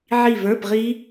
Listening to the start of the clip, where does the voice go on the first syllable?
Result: falling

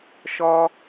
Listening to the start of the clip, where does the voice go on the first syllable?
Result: high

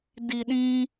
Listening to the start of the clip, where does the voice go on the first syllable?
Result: low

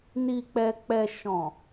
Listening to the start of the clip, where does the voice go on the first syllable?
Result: low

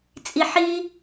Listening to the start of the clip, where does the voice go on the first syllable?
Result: high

